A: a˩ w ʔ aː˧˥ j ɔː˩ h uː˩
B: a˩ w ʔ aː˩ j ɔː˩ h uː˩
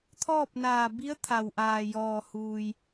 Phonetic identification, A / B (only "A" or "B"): B